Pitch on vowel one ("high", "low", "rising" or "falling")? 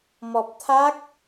low